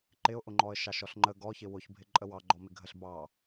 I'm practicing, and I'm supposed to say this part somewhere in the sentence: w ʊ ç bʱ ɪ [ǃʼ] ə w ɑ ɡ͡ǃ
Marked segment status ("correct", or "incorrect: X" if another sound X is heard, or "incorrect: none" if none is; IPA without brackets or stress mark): correct